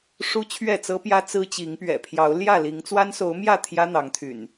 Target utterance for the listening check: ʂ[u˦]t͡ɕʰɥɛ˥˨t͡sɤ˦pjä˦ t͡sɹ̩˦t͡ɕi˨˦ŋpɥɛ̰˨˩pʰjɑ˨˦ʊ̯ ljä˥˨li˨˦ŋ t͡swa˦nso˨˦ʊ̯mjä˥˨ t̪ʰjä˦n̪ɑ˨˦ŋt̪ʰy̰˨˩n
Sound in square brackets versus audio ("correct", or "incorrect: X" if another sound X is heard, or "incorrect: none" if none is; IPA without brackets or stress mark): correct